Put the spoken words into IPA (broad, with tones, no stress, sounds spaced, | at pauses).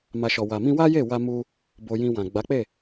m a˨ ʃ ɔ˨ w a˨ m ĩ˧ w a˦ j e˦˨ w a˧ m u˧ | b o˧ j ĩ˧ w ã˨ ɡ͡b a˨˦ k͡p e˦˨